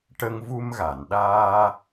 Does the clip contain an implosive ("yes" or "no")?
yes